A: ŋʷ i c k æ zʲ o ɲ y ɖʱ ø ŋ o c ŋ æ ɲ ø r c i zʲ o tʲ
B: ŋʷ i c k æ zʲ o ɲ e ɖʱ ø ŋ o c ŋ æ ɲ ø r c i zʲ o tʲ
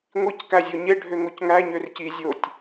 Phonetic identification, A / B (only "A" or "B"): B